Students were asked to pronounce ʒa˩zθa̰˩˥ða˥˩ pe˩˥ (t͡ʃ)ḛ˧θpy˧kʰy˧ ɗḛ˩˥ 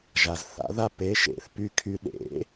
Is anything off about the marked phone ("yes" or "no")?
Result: yes